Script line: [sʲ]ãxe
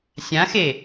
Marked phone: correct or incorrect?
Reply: correct